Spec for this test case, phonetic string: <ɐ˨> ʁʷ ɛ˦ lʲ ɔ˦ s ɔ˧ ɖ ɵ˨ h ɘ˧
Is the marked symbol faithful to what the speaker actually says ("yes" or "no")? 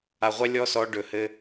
no